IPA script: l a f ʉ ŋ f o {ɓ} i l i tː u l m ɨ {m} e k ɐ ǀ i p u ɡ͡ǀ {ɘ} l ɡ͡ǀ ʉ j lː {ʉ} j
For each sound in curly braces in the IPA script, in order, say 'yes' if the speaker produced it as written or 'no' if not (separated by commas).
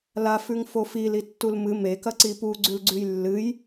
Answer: no, yes, no, no